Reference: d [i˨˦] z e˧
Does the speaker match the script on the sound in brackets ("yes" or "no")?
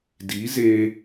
yes